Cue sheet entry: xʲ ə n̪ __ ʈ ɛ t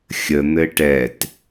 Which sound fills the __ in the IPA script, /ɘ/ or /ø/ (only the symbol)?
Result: ɘ